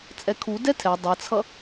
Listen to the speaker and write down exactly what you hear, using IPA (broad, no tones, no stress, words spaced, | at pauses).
t͡sʼɛkʰu dɛtʰɛ dˤʌt͡sʰʌ